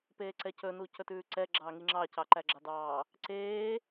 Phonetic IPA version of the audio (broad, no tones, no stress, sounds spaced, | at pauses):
p eː ǀ ɛ c ɵ n u c ɵ t ʉː ǀ ɛ ɡ͡ǁ ɑː ŋ i ŋ͡ǁ ɑ c ɑ ǃ æ ɡ͡ǁ ɑ d ɑː | ǀ eː